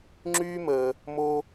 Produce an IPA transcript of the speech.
ŋ͡ǁ yː˦ m əː˧ | m o˧

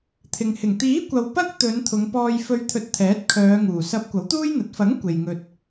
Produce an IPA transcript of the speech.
t̪ʰ ɪ˨ ŋ h ɪ˨˩ ŋ t̪ iː˨˥ kʷ ɐ˨ w p ɐ˥ k̚ t̪ ɵ˨˧ n t̪ʰ ʊ˨˧ ŋ p ɔː˧ j f ɵ˧ ɥ t̪ʰ ɵ˧ t̚ t̪ʰ ɛː˨˥ t̚ kʰ œː˨˧ ŋ uː˨˩ s ɐ˨˥ p̚ kʷ ɐ˨˥ w t̪ uː˥ j n̪ ɐ˨˥ t̚ f ɐ˨˥ ŋ kʷ e˨ j ŋ ɵ˧ t̚

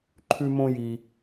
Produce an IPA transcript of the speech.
ǃʰ ʉ˥ m õ˥ j i˧

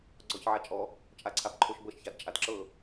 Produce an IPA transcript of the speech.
ɡ͡ǀ ɔ ç ʕ a t͡ʃʼ ɔ | t͡ʃʼ a ǀʰ a b ǃʰ o ʃ b ɤ ʃ ç a d t͡ʃʼ a d ǁ ɤ

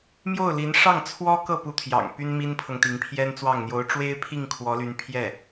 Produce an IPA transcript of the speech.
m j o˥˩ ʊ̯ l i˧˥ n ʂ ɑ˥˩ ŋ t͡sʰ w ɔ˥ k ɤ˥˩ p u˧˥ t̪ʰ j ɑ̰˨˩ ŋ p y˥ n m i˥ n pʰ ɤ˨ ŋ t̪ i˧˥ ŋ pʰ j ɛ˥ n t͡s w ɑ˥˩ ŋ n̪ j o˧˥ ʊ̯ ʈ͡ʂ w e˥ ɪ̯ pʰ i˥˩ ŋ kʰ w ɔ˧˥ l y˧˥ n pʰ j ɛ˥˩

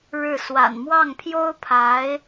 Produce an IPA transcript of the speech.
ɻ ɻ̩˥˩ s w a̰˨˩ n m w ɑ˥˩ ŋ pʰ j o˥ ʊ̯ pʰ a˧˥ ɪ̯

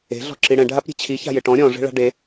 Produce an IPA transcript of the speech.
e̤ ɮ ɔ̤ ǁ i ɽ ɛ̃ ɖʱ a p ɾʲ e̤ t͡ɕʰ i ç a̤ j ɪ ʈ ɔ̃ ɾʲ ɔ̃ ʐ e̤ ɭ a̤ ɖ e

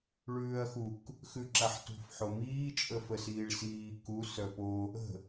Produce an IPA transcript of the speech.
ɭ ʉː ɐ̯ x u k | x ʉ ǁ a ħ t ṳ f ħ o m iː t͡ʃʼ ə f ə s iː ɭ s iː k u s œ p o | ə̤

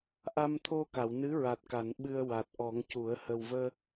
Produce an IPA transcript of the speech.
ʔ a˧ m t̪ʰ o˧ k a˨˩˨ w n ɨ˧˥ ɹ a˨˩ t̚ k a˨˩˨ n ɓ ɨ˧ ə̯ w a˨˩ t̚ ʔ ɔ˨˩˦ ŋ c u˨˩˦ ə̯ h ə˨˩ w v əː˧

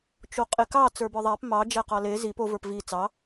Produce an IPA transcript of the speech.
t͡ʃ o qʼ e k ɑ t͡s ə˞ b ə˞ ðˤ æ p m ɑ d͡ʒ æ q ɑ l e z i p o v ə˞ p v i t͡s ɑ

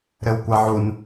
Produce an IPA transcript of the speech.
ɾ ɘ w kʷ a ʕ u n

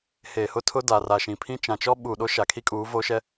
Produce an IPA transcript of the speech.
h eː˨ h ʊ˦ tʰ ʊ˦ d a˨ r a˨ ʃ ĩ˨ pʰ ĩ˦ t͡ʃ ã˨ t͡ʃ ɔ˦ ɓ u˨ ɗ o˦ ʃ a˨ kʰ i˦ kʼ uː˨˦ v o˦ ʃ ɛ˦

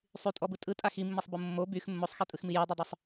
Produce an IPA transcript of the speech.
sˤ y tʼ ɔ b ɯ tʼ ɯ tʼ a x i mː i sˤ b o mː o b y x mː o sˤ x e tʼ ɯ x m i j i dˤ y dˤ ø sˤ

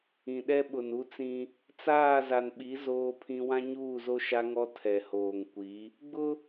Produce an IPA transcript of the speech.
ĩ˨ ɗ ɛ˦ ɓ ʊ˨ n u˦ t͡s ĩ˦ | t͡s aː˦˨ z a˨ n ɓ i˨˦ z oː˦ pʰ ĩ˦ w ã˦ ɲ uː˦˨ z o˦ ʃ a˦ ŋ ɔ˦ tʰ ɛ˨ h oː˨ ŋ kʷ i˨˦ | ɡ͡b ʊ˦

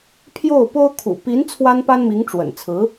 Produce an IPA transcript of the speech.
pʰ j o˥˩ ʊ̯ p o˥ ʊ̯ kʰ ṵ˨˩ p i˧˥ n t͡sʰ w a˥ n p a˥ n m i˧˥ ŋ ʈ͡ʂ w ə̰˨˩ n t͡sʰ ɹ̩˧˥

